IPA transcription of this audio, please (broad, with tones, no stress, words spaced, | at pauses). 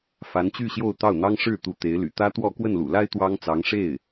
fa˧˥nt͡ɕy˥˧ ɕjo˥˧ʊ̯t̪ɑ˥˩ʊ̯n̪ɑ˥ŋ ʂɻ̩˥˩ t̪u˧˥t̪e˧˥ɪ̯ly̰˨˩ t̪ä˥t̪wɔ˥˧ kwə˥˩nlṵ˨˩la˥ɪ̯ t̪wɑ˥ŋ t͡sɑ˧˥ŋʂe˥˩ɪ̯